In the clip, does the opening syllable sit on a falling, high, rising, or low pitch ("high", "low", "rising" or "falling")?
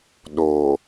low